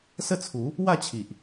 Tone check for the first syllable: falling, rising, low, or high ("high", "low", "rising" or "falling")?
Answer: falling